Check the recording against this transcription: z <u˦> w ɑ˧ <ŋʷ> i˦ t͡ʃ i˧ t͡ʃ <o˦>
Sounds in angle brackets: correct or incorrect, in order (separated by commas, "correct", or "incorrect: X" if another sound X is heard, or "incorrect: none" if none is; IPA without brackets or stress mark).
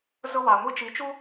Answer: incorrect: ʊ˦, correct, incorrect: u˦